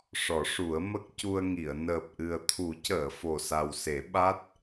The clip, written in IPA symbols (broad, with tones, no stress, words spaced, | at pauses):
ʂɔ˨˩˦ʂu˨˩˦ə̯mə˦˥k̚ cu˧ə̯ŋi˨˩˨ə̯ nəː˨˩p̚ʔɨ˨˩ə̯t̪ʰu˨˩˦ cəː˨˩˨ fo˨˩sa˨˩wse˨˩˦ ɓa˦˥t̚